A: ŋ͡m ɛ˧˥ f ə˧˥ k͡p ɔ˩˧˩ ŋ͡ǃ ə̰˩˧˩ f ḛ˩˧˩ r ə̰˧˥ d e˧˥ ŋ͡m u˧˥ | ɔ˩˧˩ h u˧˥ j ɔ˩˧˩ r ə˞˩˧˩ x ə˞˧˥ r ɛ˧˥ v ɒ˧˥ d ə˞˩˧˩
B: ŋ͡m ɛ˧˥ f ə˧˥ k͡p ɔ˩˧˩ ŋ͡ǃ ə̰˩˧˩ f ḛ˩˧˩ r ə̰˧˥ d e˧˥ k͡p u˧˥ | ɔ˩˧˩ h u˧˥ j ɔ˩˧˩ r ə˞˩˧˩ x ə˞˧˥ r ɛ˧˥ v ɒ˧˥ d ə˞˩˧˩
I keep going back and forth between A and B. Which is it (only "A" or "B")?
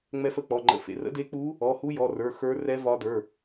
B